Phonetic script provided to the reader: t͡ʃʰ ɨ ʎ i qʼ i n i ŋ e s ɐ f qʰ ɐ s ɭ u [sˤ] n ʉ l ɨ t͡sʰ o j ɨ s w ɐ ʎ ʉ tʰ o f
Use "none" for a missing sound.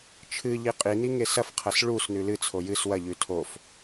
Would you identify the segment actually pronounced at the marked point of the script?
s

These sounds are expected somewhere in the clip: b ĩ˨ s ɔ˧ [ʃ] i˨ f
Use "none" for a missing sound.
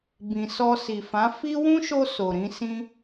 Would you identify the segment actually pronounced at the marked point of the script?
s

